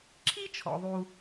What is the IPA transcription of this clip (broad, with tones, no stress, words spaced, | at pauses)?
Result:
ǁʰi˥t͡ʃʰɔ̰˩ðˤu˩